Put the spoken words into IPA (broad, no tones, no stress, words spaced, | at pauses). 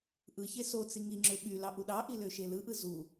ʔɯçe sot͡si ŋiŋ͡ǁø ɓylɑ ʔuɗɑʔi løʃelɯʔɯ zu